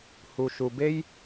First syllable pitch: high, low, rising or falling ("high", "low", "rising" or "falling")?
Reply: low